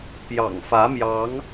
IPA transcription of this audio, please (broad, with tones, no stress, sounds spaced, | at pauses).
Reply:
p j ɑ̰˨˩ ŋ f ä˨˦ m j ɑ˨˦ ŋ